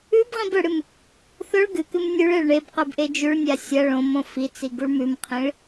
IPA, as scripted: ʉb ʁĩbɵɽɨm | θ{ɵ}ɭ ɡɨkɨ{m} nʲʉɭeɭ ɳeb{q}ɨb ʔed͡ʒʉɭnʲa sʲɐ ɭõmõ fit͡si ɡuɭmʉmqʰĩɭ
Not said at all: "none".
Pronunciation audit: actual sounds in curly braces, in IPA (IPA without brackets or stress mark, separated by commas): ɵ, m, q